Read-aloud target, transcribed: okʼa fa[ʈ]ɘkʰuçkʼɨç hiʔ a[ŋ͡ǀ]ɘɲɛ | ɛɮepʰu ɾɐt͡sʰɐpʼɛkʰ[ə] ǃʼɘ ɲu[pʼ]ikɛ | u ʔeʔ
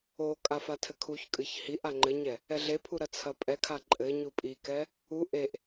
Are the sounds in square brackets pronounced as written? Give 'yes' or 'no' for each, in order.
no, no, no, yes

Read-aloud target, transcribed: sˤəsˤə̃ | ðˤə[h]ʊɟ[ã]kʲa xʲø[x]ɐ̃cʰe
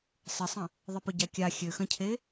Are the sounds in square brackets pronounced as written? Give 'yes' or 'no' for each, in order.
no, no, yes

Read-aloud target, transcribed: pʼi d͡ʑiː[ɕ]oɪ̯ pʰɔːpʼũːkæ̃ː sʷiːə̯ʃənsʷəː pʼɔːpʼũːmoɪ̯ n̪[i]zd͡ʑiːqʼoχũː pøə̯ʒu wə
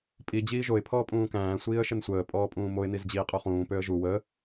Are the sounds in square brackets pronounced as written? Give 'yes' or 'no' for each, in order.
no, yes

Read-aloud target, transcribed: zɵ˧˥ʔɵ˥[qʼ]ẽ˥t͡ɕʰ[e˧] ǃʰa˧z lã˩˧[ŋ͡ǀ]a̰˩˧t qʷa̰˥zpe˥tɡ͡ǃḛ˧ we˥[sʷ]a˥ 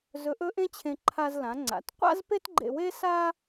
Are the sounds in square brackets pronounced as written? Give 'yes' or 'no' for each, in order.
no, no, yes, no

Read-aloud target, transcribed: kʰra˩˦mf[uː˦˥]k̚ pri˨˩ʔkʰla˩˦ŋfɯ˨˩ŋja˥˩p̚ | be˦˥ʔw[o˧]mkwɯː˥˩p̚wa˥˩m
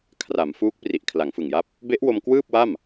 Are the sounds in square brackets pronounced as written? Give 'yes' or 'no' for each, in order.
yes, yes

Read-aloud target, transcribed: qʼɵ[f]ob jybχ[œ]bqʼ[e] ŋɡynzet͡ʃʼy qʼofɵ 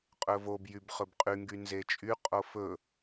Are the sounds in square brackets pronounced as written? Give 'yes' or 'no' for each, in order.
no, no, no

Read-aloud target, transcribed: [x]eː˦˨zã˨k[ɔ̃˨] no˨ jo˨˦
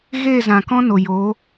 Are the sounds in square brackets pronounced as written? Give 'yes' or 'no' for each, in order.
no, no

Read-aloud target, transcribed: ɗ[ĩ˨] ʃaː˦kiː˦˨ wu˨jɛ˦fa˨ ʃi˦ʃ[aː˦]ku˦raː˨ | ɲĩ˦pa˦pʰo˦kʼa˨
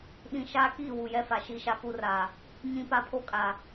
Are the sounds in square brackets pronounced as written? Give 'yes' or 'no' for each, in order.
yes, no

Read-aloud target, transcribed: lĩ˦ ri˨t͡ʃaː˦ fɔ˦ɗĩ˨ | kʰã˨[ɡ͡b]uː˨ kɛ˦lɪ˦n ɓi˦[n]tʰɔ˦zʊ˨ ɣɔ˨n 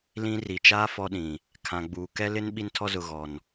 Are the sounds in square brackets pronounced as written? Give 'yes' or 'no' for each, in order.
yes, yes

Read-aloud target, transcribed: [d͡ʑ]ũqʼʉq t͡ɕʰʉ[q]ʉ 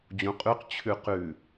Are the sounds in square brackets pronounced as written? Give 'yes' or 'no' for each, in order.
yes, yes

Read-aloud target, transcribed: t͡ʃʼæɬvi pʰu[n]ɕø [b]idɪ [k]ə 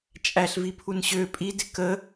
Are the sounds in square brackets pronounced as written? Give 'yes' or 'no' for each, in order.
yes, no, yes

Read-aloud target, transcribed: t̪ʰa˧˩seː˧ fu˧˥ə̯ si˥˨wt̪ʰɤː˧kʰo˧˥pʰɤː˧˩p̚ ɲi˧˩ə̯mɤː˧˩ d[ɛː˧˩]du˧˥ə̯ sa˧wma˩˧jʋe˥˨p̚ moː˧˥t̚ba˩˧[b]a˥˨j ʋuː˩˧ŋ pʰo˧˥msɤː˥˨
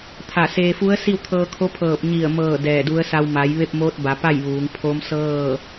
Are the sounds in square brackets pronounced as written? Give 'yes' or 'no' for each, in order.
yes, no

